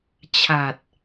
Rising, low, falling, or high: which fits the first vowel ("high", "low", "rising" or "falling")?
low